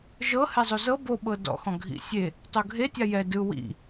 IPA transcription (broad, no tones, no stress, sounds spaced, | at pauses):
ʒ ɤ h ɛ zˤ o z ɤ b o ɓ ɤ d ɔ̰ x ɔ̃ ɡʱ ḭ sʲ e | tˤ o ɡʱ e tʲ a j ɛ d ɯ w ḭ